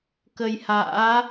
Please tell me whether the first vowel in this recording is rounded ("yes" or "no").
no